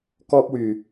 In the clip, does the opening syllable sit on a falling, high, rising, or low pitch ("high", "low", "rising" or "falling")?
high